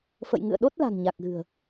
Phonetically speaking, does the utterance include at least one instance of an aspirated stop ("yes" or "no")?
no